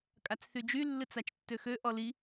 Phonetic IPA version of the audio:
kʼ a t͡s θ y d͡ʒ y lː ɨ t͡s a t͡ʃ tː ø x ø ʔ ɔ l i

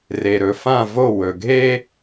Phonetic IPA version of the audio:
r e˨ ɾ ɵ˨ f ã˦˨ v o˦˨ w ɵ˨ ɡʱ e˦

